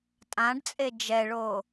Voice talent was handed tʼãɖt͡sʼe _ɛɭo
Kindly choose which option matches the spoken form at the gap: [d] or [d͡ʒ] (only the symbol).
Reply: d͡ʒ